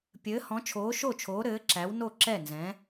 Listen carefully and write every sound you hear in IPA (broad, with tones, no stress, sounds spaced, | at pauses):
pʲ ɘː˨˥ h ɔ̃˨˥ t͡ʃʰ oː˨˥ ʃ o˥˩ t͡ʃʰ oː˨˥ ɾ ɘː˨˥ ǁ æ˨˥ w n o˥˩ ǁ ɛ˥˩ n z ɛ̃˨˥